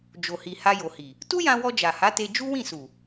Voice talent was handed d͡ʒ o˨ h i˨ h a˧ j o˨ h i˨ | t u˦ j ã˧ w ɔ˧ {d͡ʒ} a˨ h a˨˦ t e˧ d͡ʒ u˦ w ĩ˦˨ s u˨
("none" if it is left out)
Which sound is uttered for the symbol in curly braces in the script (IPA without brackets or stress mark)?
d͡ʒ